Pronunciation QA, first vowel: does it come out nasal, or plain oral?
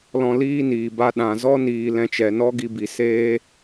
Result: nasal